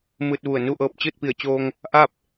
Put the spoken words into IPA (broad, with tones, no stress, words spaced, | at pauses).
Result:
mɯː˧t̚ ʋu˧˩ə̯ nu˥˨ʔɤː˧p̚ t͡ɕɯː˥˨t̚pi˧˩ə̯t͡ɕoː˧ŋ | ʔa˥˨p̚